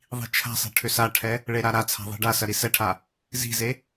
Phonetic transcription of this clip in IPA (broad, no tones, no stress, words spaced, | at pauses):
ðˤi̤t͡ʃʰa̤sˤɛ̤ ʈʰʏsaʈʰɛ | ɭeɾaɾat͡sʰa̤ ðˤi̤ɖasɐ ɾisɛʈʰa | zi̤ze